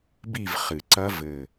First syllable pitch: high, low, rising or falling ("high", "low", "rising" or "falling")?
falling